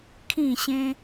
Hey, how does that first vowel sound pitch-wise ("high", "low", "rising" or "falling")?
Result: falling